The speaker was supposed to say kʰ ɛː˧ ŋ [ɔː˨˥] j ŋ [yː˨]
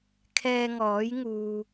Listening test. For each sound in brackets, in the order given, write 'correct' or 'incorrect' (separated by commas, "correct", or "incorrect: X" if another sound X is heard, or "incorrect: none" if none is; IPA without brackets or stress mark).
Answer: correct, incorrect: uː˨